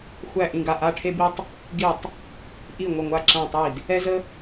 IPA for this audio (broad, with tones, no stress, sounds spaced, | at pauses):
xʷ æ˧˩ ʔ ĩ˧˩ ɡ a˧˩ ʔ a˧˩ ʈʰ e˧ b i˧ tˤ | ɡ i˧˩ tˤ | ʔ i˧˩ ŋʷ ə˧˩ ŋʷ a˧˩ ǁ æ̃˧˩ tˤ i˧˩ d | ɛ˧ z ə˧